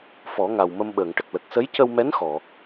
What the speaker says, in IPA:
f ɔ˨˩˦ ŋ a˨˩ w m ə˧ m ɓ əː˨˩˨ ŋ ʈ ə˨˩ k̚ l ə˨˩ k̚ s ə˧˥ j c ə˧ w m ɛ˧˥ n x ɔ˨˩˨

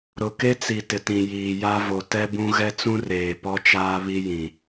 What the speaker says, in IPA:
ɾ ʊ˨ k e˦ t͡s i˨ t ɪ˨ t ĩ˨ j iː˨ j a˦ v o˨ t ɛ˦ b ũ˦ ɣ ɛ˦ t͡s ũ˦ r eː˨ p ɔ˦ t͡ʃ aː˦ β i˦ j ĩ˨

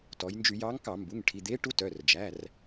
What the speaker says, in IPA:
t ɔ˩˧ j n d͡ʒ y˧˩˧ j ɑ˧˥ ŋ k ɑ˧˩˧ m b u˩˧˩ ŋ ʈʰ i˩˧˩ d̪ e˧˥ ʈ u˧˥ t œ˩˧˩ r d͡ʒ æ˩˧˩ r

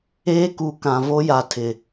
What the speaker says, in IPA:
eː˦ k u˨ k ã˨ v o˦ j a˨ tʰ ɪ˨

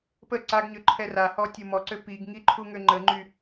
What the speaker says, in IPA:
p ə ǀ a ɡ ɲ ø ǃʰ ɛ r a h ɔ tʲ o m ɔ ǀ ø p i ɡ ŋ i ǃʰ u ŋ ø ŋ͡ǃ ə ŋ͡ǃ y

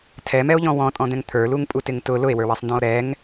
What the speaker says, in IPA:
tʰ ɛ m ɛ o̯ ʎ ɔ̃ w ɔ̃ tʼ ɔ̃ d̪ ɛ̃ ŋ t̪ʰ ə˞ l u ŋ pʼ u t ɪ ŋ t ʊ l ʊ e̯ w ə˞ w ɛ sˤ n d ɔ̃ o̯ ɾ ɛ ŋ

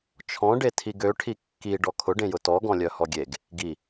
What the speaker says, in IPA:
t͡ʃʰ ɔ̃ ɖ e tʰ i ɡ ø ʈʰ i kː i ɖ ɔ kʰ ʊ ɖ ẽ j ʊ t ɔ ɡ ɔ̃ lʲ œ h ɔ ɡʲ e ɡ | ɡ i

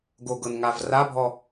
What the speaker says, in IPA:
ɡ o ɡ ɤ n ŋ a v r a bʱ ɔ

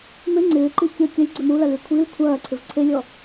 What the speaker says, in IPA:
m ʏ ŋ͡ǀ ɪː ǃ i kʲ ə kʲ ɐ lʲ ɡ͡ǀ ø m u l ɐ l y kʷʰ i l kʷʰ ɐː ǀʰ ɪ v ǀʰ e lʲ ɔ

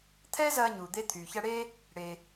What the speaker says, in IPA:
t̪ʰ ɛː˥ z ɐː˧ ɲ uː˩ d̪ e˧ t̪ʰ yː˩ ç ɐ˧ ɽ eː˥ | ɽ e˩

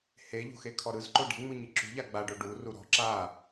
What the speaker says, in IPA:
h e ʎ o̤ x e kʰ ɔ ɾ ɯ z ǃ o ɖ e̤ ŋ͡m ɯ ɲ i ǁ ṳ ʎ a ɡ͡b a ɖ o ɖ u r u ɾ ɔ̤ ǁ a

